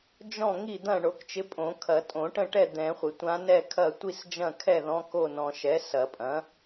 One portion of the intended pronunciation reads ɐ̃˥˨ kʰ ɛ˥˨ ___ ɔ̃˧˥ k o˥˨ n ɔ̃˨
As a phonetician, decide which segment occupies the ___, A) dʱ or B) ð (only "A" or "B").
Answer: B